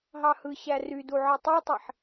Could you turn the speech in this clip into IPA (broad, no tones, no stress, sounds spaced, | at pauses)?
ɦ ɑ h ɯ ɕ æ r y d u ʕ ɯ tˤ u tˤ i ħ